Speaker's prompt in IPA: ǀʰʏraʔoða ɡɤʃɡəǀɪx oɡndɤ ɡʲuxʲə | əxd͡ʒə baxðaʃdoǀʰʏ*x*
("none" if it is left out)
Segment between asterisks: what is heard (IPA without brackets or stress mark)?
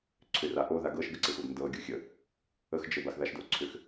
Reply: x